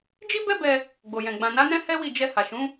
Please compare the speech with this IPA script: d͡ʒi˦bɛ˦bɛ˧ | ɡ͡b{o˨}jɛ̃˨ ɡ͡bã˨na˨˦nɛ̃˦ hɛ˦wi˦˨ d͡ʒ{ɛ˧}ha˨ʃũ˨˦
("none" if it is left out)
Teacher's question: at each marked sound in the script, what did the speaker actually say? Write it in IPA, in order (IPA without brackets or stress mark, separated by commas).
o˨, ɛ˧